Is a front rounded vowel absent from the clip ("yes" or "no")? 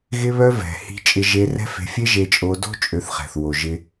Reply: no